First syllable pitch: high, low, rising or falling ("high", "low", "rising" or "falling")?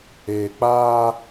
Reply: low